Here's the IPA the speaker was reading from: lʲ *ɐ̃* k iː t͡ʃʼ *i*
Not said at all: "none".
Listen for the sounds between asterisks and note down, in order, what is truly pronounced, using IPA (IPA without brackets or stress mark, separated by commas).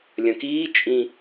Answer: ɐ̃, ĩ